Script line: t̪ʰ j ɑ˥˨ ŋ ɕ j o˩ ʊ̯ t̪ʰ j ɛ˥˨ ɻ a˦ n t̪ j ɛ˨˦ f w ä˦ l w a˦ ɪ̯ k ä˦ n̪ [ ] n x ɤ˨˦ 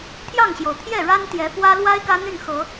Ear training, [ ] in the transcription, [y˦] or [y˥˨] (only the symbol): y˥˨